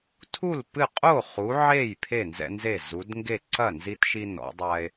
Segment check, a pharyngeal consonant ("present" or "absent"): present